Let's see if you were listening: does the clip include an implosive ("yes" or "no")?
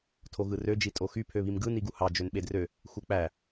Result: yes